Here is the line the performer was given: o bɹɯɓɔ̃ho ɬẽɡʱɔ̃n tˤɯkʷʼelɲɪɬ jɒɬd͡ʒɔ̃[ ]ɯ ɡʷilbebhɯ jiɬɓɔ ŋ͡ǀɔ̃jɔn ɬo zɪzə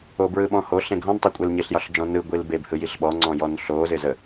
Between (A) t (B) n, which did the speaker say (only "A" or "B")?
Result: B